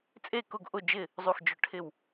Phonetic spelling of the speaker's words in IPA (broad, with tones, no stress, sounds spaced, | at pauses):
t͡sʼ e˥˨ k ʊ˥˨ ɡ ʔ ʊ˥˨ d͡ʒ ɪ˥˨ | zˤ u˧˩ x d͡ʒ ʊ˧˩ ʈʰ ɪ˧˩ w